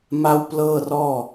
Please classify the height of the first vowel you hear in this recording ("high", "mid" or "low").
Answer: low